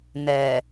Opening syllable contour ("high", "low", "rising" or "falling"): low